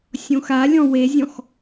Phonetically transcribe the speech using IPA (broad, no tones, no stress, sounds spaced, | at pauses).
sʲ õ x a lʲ ɔ̃ w e zʲ ɔ̃ x